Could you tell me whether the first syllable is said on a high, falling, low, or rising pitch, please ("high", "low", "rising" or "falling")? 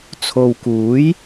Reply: low